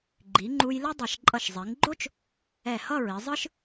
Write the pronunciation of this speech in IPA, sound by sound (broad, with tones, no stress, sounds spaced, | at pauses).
ɡ͡ǃ i˩˧ ŋ͡ǃ u˧ j l ʌ˥ dˤ ʌ˧˩ ʃ ǃʼ ʌ˧˩ ʃ zˤ i˩˧ ŋ ɡ͡ǃ o˥ t͡ʃ | ɛ˧˩ h ʌ˥˧ ɹ i˩˧ zˤ ɯ˥ ʃ